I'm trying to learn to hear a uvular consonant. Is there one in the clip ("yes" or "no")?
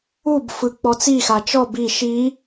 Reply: no